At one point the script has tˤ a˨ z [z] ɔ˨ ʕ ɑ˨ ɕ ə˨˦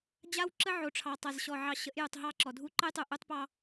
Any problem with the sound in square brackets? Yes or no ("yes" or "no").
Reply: yes